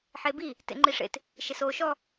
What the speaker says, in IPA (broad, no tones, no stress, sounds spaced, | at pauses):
ħ e b i | t ḛ ŋ͡ǃ i ʂ ḛ t | ʃ e s oː ʃ ɔ